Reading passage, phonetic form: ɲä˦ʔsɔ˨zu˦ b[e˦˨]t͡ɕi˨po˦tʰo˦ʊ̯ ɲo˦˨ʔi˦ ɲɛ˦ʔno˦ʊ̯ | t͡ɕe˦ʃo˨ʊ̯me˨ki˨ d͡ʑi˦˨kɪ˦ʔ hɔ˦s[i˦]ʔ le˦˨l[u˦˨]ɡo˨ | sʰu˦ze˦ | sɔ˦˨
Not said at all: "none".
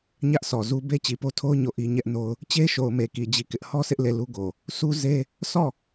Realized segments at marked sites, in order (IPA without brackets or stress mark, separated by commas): e˦, ɪ˦, u˦